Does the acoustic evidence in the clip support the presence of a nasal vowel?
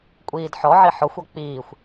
no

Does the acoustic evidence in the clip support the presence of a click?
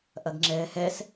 yes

